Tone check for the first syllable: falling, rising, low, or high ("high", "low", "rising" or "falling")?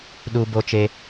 high